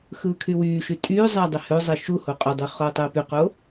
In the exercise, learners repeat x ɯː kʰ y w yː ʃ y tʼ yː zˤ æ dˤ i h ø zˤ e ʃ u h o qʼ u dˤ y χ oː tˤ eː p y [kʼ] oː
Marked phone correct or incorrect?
incorrect